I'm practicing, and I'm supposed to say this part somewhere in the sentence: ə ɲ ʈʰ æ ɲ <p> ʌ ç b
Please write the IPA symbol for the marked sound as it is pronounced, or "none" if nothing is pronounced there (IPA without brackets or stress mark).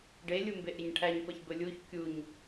p